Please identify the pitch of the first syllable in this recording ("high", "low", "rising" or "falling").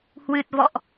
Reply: low